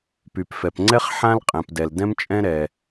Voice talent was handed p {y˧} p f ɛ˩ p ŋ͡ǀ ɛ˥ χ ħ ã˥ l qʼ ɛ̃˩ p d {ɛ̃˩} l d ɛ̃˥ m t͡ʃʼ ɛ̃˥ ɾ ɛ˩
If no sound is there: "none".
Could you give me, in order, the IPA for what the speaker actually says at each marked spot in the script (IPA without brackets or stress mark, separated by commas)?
y˩, ɛ˩